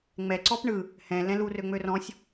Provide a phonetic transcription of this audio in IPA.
ŋ͡m ɛ ǀ ɔ p ɳ ɯ | h ɛ̃ l ɛ̃ l u r ø ŋ͡m ø r ɔ̃ sʲ

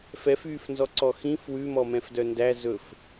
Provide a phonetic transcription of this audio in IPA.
f ɛ f yː f n z ɔ ǀ ɔ x ĩ f w ʉ m ɔ m ɛ̃ f d œ n d æ z ɵ f

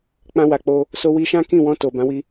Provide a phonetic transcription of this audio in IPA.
k͡p ã˧ w a˨ k͡p o˧ | s o˧ w i˧ ʃ ã˦ k ĩ˦˨ w ɔ̃˧ t o˨ b ã˨˦ w i˧

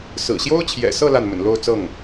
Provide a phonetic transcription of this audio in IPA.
s ɹ̩˨˩ ɕ j o˥ ʊ̯ t͡ɕʰ j ɛ̰˨˩ s ɤ˥˧ l a˥˩ n m ə̰˨˩ n l o˥˧ ʊ̯ t͡s ɤ˥˩ ŋ

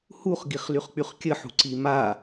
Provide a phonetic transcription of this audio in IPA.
h u χ ɡ i χ l y χ k͡p y χ kʲ ə ħ ṳ ǀ i m a

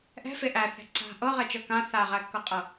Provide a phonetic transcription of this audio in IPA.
ʔ ɛ̤ f e ʔ æ θ ɛ̤ ǀ a̤ ʔ ɤ ʁ ɛ t͡ʃ ɤ k ã θ a ʁ æ kː ɤ qʼ ɤ

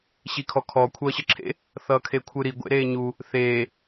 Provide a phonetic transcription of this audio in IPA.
ɕ i kʰ ɔ kʰ ɔ kʷʰ ʌː ɕ ə ǁʰ ḛ | θ ʌː kʰ e kʷʰ ɯ ɾ i ɡʷ ḛ ɾ eː ɲ u | θ eː

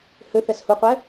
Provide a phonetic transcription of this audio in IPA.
h ø θ ɛ s h u qʷ ɛ

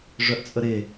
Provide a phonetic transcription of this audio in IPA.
ʐ œ ʔ t͡sʼ ə ɾ e

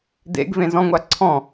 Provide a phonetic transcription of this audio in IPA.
d ḛ ɡ v ẽ z ɔ̃ ŋʷ a ǀʰ ɔ̃

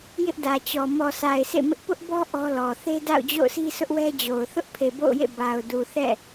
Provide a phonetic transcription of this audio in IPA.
j ɪ˦ ʔ d ä˨ t͡ɕ ɔ˨ m ɔ˨ sʰ a˨ ɪ̯ sʰ ḛ˦˨ m ɪ˦ ʔ p ʊ˦ ʔ b ɔ˦ ʔ ɔ˦ l ɔ˨ θ e˦ d a̰˦˨ ʊ̯ d͡ʑ o̰˦˨ ʊ̯ sʰ i˦ sʰ ʊ˦ ʔ w ɛ˦ d͡ʑ o˨ ʊ̯ θ ʊ˦ ʔ pʰ e˨ b o̰˦˨ ʊ̯ j ḛ˦˨ b a˨ ʊ̯ d u˨ θ ɛ̰˦˨

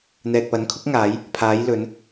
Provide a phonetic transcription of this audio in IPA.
n̪ ɛː˨ k̚ p ɐ˨˥ n kʰ ʊ˨˥ k̚ ŋ aː˨˧ j | pʰ aː˨˧ j l ɵ˨˧ n

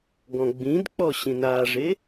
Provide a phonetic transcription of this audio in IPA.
ɡ ɔ̃ ɡ͡b ĩ d k͡p ɔ ɕ ĩ n a ʐ e

